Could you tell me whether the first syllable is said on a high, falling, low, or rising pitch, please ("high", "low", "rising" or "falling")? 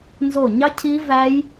falling